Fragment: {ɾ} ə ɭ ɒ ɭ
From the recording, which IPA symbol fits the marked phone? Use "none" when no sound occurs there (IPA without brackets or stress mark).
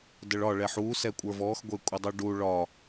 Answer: d